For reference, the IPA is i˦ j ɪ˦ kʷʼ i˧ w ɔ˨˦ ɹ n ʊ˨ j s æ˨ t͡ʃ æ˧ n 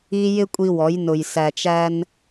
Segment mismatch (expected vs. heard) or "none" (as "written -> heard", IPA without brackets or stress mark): ɹ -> j